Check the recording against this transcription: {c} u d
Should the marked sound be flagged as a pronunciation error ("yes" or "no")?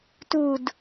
yes